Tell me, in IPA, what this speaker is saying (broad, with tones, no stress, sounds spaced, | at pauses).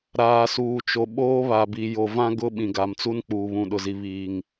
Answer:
ɾ aː˨ s uː˨ t͡ʃ o˨ ɓ oː˦ β a˨ b i˨ j o˨ v ã˦ ɡ ʊ˦ ɓ ĩ˨ ɡ a˨ m t͡s u˦ n k͡p uː˨ β ũ˨ ɗ ʊ˨ z i˨ β iː˨ ŋ